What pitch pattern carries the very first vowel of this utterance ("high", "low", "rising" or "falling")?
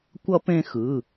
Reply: high